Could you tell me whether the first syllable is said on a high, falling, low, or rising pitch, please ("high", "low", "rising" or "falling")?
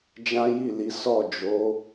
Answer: high